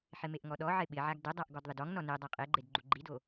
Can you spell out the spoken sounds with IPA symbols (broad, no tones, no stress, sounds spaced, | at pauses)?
ħ ɪ m e ʔ ŋ ɔ ɗ ɔ ʕ ɪ ɓ ɪ ʕ a ɡ d ɪ dˤ a ʔ ɡ ɔ d ðˤ ɪ d ɔ ŋ n ɔ n e dˤ a qʼ e ɡ͡ǃ e d ɡ͡ǃ u ɡ͡ǃ i d o